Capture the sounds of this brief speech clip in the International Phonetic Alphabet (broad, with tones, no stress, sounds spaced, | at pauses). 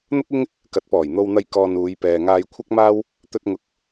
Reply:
n̪ ʊ˥ k̚ ɪ˥ ŋ | k ɐ˨˥ t̚ p ɔː˨˩ j n̪ o˧ w n̪ ɐ˧ j k ɔː˧ n uː˨˧ j p ɛː˨ ŋ aː˧ j kʷʰ ɐ˥ k̚ m aː˥ w | t̪ ɵ˧ t̚ ŋ ʊ˨ k̚